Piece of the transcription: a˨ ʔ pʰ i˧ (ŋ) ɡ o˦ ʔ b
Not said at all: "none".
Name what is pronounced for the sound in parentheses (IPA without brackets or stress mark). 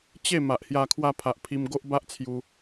m